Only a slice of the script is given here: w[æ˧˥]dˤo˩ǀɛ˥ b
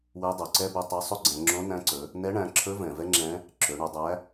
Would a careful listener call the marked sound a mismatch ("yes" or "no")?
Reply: yes